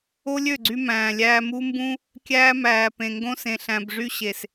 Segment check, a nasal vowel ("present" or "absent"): present